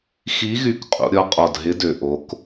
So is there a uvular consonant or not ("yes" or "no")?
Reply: yes